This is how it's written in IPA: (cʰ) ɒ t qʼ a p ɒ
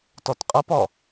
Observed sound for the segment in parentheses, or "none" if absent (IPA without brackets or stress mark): t